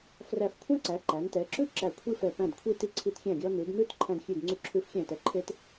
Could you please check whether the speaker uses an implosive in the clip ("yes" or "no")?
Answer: no